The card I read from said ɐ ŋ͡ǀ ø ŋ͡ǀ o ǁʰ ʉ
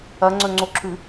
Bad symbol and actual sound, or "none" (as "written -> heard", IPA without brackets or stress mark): ø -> ɵ